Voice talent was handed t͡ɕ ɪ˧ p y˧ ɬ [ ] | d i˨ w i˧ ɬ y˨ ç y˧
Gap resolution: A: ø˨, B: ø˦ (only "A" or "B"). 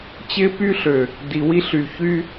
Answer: A